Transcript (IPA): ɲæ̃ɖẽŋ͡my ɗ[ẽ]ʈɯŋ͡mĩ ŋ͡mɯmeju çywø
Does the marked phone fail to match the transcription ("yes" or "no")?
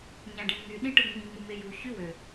yes